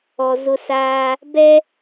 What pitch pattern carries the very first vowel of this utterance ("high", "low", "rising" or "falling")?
low